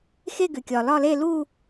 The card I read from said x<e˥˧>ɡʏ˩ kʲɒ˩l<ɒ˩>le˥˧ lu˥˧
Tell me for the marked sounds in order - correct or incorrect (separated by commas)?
correct, incorrect